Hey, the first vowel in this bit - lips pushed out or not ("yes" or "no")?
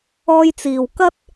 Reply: yes